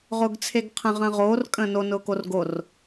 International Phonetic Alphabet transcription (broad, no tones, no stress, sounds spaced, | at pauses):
ʁ ʊː ɡ t͡sʰ e ɡ qʰ ə̃ ʁ ə̃ː ʁ oː r kʼ ə̃ː n o n ʊː k o r ɡ o r